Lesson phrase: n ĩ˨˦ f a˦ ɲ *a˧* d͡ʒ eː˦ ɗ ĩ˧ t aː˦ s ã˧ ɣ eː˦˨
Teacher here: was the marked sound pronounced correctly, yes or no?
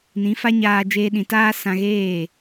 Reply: no